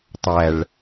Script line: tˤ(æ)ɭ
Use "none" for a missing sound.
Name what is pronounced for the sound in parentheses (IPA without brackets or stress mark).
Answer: æ